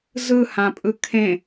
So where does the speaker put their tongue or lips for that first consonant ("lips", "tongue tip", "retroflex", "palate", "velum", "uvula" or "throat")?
tongue tip